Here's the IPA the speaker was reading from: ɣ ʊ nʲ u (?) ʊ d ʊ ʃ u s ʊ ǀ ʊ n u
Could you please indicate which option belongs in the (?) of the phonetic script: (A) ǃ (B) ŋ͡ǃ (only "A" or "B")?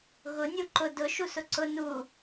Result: A